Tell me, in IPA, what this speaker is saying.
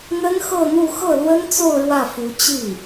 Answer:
n̪ ə˥ n x ɤ˥˧ n̪ u˥˧ x ɤ˥˩ l w ə˥ n t͡s o˥˧ ʊ̯ ɻ w ä˥˩ f u˧˥ t͡ɕ i˥˩

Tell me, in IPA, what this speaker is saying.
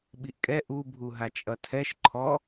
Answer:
ɓ i ʔ kʼ ɛ ʔ u bʱ u ɦ a t͡ʃʼ ʌ tʰ ɛ ʃ ǃʰ ɔ

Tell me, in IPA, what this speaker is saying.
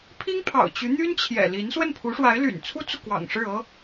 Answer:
pʰ i˥ ŋ pʰ ɑ̰˨˩ ʊ̯ t͡ɕ y˧˥ n̪ y˥ n t͡ɕʰ j ɛ̰˨˩ l i˧˥ n s w ə˥˩ n pʰ u˧˥ ʂ w a˧˥ ɪ̯ l y̰˨˩ n t͡sʰ u˥ t͡s u˨ k w ɑ̰˨˩ ŋ ʂ ɻ̩˥˩ ɤ˥

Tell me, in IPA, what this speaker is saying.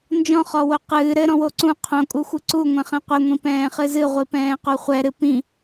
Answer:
n d͡ʒ ɔ̃ χ ɔ w o q ɨː ɾ ɘ ɾ ɔ̃ w o ǀ ũ qʰ õ kʼ u xʷ ɨ ǀ u ŋʷ ɛ̃ χ ɛ̃ qʷ e ŋʷ ĩ p ɛ̃ː χ ɨ z ɨ ʁʷ i p ɛ̃ː q u χʷ ɛ ɾ ɨ p ĩ

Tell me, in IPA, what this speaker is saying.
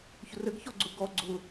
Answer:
ç ʊ r ə ɡ ç ɔ ɡ͡ǀ ʊ ɡ ɔ ɡ͡ǀ ʊ

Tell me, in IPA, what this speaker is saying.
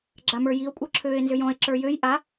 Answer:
ɡ͡ǁ a m ə˞ j i o̯ kʷʼ ɤ ǁʰ øː e̯ n z ʏ j ɔ̃ e̯ ǁ ə˞ j ø j ʔ a

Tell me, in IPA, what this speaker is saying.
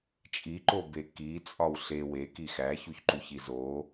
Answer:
t͡ʃʼ i ǃ o b e k i t͡sʼ ɒ w ɬ e w e k i x æ ç u ç ǃ u ç i z o

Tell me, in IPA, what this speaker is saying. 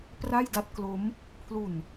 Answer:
p r a˥˩ j d a˥˩ t̚ k l o˦˥ m | pʰ l u˨˩ n

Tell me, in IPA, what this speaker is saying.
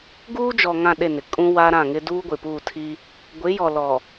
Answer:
ɡ uː˦ d͡ʒ ɔ˨ ŋ ã˦˨ ɗ e˦˨ n ɪ˨ kʼ ũ˦ w a˦ ɾ ã˦˨ ŋ ɪ˦ d uː˦ ɡʷ ɪ˨ p uː˦˨ tʰ iː˦ | ɡʷ ɪ˨˦ j ɔ˨ l ɔ˨

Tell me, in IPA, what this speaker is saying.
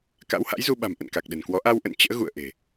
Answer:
k a̰˧˥ w h a̰˧˥ j z u˧ ɓ a̤˨˩ m ʔ ə̰˧˨ n k a˨˩ k̚ ɗ ə̤˨˩ n k w ɔ˨˦ ʔ a˧ w ʔ ə̰˧˨ n t͡ɕ ə̰ː˧˥ ɣ ṵ˧˨ ə̯ ʔ e̤˨˩

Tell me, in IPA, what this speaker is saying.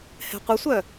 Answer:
h ɛ̤ qʷ ʌ sʷ œ

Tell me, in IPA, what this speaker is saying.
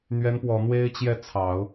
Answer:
n̪ ɥ ɛ˧˥ n p w ɔ˨˩ n̪ w e˥ ɪ̯ t͡ɕ j ɛ˥˩ t͡sʰ ɑ˨˩˦ ʊ̯

